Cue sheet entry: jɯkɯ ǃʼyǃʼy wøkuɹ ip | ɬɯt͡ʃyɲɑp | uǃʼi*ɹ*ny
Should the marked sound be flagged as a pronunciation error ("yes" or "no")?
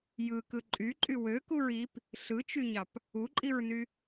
no